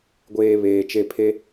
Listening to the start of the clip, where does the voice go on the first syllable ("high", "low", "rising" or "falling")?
low